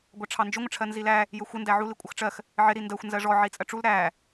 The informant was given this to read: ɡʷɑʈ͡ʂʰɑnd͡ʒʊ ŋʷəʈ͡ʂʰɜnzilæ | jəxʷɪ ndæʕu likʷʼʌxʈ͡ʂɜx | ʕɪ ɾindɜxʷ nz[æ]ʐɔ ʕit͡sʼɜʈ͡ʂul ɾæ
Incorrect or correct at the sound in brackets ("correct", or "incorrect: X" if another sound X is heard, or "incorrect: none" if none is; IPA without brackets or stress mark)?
incorrect: ɜ